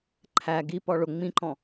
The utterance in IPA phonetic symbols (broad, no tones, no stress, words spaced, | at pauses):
ǃʰæ ɡi pɔɭʊ ŋ͡mĩǃɔ̃